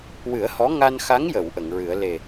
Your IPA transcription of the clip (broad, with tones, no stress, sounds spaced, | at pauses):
w ɨ˨˩˦ ə̯ h ɔ˧˥ ŋ a˧ n x a˧˥ ŋ j ə˨˩˨ w ʔ ə˨˩˨ ŋ ɹ ɨ˨˩˦ ə̯ l e˨˩